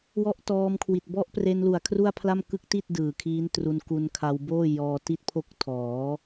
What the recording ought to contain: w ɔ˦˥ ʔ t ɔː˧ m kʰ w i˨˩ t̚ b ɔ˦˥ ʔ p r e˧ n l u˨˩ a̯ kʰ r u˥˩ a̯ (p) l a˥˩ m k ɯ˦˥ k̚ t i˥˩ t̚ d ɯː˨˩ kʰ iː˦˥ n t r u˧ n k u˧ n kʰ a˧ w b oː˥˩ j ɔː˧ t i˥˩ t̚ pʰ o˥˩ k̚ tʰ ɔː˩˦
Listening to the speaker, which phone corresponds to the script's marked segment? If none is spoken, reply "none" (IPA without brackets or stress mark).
pʰ